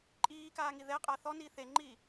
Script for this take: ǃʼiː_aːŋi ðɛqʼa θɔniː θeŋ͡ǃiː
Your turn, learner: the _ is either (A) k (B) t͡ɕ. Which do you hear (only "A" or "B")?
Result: A